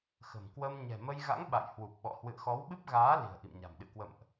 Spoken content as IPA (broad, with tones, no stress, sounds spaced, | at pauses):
x ə̤˨˩ m k w ə˧ m ɲ ɛ̤˨˩ m ə˧ j ɣ a̰˧˥ ŋ ɓ a̰˧˨ j h w u˨˩ p̚ ɓ ɔ̰˧˨ h w ɨ̰˧˨ ə̯ x ɔ˨˦ w ɓ ɨ˦˥ p̚ ɣ aː˨˦ l i̤˨˩ ə̯ ʔ ḭ˧˨ m ɲ a̤˨˩ m ɗ ɨ̰˧˨ k w ə̰˧˨ m ʔ